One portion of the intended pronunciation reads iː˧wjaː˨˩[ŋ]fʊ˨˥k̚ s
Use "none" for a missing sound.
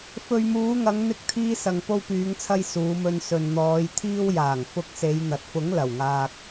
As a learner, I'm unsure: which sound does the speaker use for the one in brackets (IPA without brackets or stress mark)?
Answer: ŋ